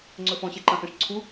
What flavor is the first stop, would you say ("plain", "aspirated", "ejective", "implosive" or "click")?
click